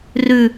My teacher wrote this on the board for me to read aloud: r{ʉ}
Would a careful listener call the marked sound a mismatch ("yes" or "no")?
no